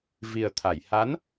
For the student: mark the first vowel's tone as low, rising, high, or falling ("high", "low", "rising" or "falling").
low